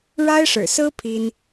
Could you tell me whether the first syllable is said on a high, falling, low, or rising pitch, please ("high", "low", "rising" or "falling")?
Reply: high